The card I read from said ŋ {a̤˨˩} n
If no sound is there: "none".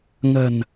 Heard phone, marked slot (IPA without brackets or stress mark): ə̤˨˩